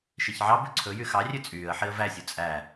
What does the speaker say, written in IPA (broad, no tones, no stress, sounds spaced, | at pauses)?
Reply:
ʃ i ç ʕ ɑ b ʉ ǀʰ ɵ j y x ɑ rʲ ʉ t͡sʼ yː ə̯ ħ i ə̯ v æ sʲ u t͡sʼ æ